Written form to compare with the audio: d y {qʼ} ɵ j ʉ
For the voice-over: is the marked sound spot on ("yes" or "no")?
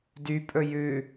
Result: no